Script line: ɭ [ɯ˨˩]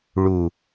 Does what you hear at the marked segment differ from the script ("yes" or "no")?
yes